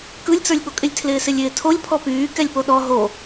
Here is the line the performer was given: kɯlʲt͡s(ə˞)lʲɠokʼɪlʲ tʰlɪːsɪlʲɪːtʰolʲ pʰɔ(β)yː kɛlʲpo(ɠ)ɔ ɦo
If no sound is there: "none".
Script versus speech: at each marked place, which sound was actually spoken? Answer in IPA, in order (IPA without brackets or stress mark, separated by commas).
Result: ə˞, p, ɗ